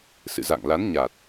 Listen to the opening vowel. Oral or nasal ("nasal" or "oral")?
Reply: oral